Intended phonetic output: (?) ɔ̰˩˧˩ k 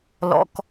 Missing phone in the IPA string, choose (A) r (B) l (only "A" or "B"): B